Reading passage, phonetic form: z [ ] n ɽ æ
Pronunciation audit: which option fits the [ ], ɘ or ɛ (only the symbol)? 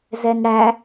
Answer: ɛ